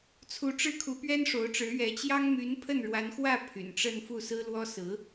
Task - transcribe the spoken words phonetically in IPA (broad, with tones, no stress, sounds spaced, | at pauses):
t͡sʰ u˧˥ ʈ͡ʂ ɻ̩˥˩ kʰ u˧˥ p ɥ ɛ˥ n ʂ o˧˥ ʊ̯ ʈ͡ʂ ɻ̩˧˥ ɥ ɛ˧˥ t͡ɕ j ɑ˥ ŋ m y˧˥ n pʰ ə˥˩ n ɻ w a˧˥ n x w ä˥˩ pʰ y̰˨˩ n ʈ͡ʂ ə˥˧ n f u˥˩ s ɹ̩˥ l w ɔ˥ s ɹ̩˧˥